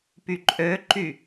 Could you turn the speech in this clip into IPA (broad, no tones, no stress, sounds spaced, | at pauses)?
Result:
p y ǃʼ ø ǃ y